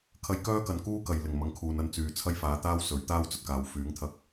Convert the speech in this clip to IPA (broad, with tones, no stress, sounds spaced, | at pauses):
kʰ ɐ˧ j k œː˥ k ɐ˨ n k uː˥ k ɐ˨ j l ɪ˨˩ ŋ m ɐ˨˧ ŋ kʰ uː˨ n ɐ˧ n t͡s yː˨ t͡sʰ ɐ˥ j f aː˨˥ t̪ aː˥ w s ɵ˨˥ ɥ t̪ aː˥ w t͡s ɵ˨ t̚ k aː˨ w f yː˨˥ ŋ t̪ʰ ɐ˧ k̚